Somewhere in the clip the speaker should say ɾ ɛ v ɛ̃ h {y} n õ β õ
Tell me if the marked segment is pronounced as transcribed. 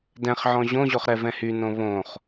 yes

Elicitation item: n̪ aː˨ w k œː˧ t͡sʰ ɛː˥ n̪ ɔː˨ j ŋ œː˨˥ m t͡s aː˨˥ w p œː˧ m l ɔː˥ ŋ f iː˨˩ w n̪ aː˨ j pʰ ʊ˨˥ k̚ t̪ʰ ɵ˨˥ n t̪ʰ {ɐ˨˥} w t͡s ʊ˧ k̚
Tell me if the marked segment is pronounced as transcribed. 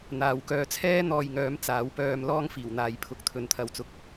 no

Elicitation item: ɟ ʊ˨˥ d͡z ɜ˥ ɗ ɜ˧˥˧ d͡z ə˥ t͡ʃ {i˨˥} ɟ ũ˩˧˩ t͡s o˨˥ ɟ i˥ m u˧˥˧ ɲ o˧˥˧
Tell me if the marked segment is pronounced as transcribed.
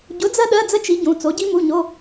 yes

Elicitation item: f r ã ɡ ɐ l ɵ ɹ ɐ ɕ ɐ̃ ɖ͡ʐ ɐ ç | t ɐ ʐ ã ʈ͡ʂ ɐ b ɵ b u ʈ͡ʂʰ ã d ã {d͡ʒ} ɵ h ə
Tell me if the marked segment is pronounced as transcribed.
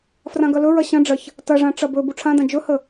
yes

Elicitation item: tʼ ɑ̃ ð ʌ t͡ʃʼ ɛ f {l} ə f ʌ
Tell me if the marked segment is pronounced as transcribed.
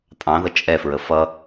no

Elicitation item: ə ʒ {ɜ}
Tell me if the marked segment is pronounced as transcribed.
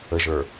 no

